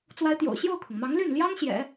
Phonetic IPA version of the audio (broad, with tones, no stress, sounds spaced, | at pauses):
t͡s w a˧˥ ɪ̯ t̪ j o̰˨˩ ʊ̯ ɕ j o˥˩ ʊ̯ kʰ ʊ˩ ŋ m ɑ˧˥ ŋ l y˥˩ n l j ɑ˥ ŋ ɕ j ɛ̰˨˩˦